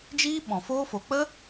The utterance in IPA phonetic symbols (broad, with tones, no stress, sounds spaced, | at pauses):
d͡ʒ iː˦ ɓ ɔ̃˨ f oː˦ f o˨ k͡p ə˦